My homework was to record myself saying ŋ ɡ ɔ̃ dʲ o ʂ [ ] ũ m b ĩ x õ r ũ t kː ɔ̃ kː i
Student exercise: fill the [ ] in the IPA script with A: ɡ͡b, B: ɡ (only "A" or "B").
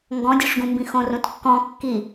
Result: B